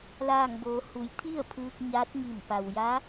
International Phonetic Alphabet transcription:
laː˧˩ŋboː˩˧hu˩˧j t̪ʰi˥˨ə̯pʰɯː˧k̚ ɲaː˧˥t̚ŋi˧˩mpa˩w ja˧˥

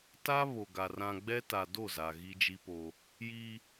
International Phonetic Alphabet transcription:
ta˦ βo˨ɡa˨ rã˨ɡ͡bɛ˦ta˨ do˦˨za˨ ɣi˦d͡ʒi˦po˦ | ji˦

